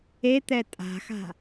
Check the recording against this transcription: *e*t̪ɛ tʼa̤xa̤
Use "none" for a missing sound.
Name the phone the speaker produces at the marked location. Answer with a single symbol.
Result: e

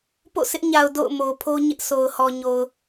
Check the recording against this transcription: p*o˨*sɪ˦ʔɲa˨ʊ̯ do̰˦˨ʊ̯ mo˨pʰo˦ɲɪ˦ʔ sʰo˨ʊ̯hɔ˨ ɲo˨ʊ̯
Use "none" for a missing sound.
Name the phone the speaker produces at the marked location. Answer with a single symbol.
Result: o̰˦˨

